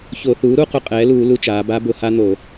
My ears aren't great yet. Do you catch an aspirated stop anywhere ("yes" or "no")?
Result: no